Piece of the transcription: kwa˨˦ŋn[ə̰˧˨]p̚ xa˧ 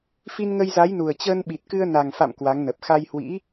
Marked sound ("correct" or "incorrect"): incorrect